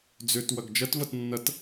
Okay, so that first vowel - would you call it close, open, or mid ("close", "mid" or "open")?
mid